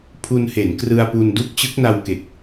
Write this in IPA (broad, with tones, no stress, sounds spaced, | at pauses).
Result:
pʰ u˧ n h e˩˦ n k r ɯ˧ a̯ p u˧ n d u˥˩ k̚ t͡ɕ ɯ˦˥ k̚ n a˧ w k e˨˩ k̚